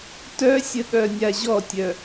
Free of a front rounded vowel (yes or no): no